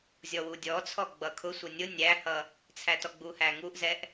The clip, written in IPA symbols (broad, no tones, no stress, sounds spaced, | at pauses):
zʲ ɔ w u dʲ ɔ t͡sʰ ɔ ɡ͡b ʌ kʰ ʊ sʷ ʌ nʲ ʊ nʲ æ h ʌ | t͡sʰ æ t ɔ ɡ͡b u h æ ŋ u ʔ z ɛ ʔ